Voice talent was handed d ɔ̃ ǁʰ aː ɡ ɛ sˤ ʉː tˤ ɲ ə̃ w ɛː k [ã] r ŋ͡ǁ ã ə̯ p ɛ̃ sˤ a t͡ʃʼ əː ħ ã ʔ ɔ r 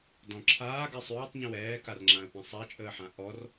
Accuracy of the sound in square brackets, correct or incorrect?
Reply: incorrect